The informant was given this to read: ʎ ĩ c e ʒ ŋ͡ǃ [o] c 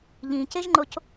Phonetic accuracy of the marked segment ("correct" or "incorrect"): correct